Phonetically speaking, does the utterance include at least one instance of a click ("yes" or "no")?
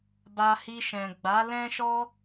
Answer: no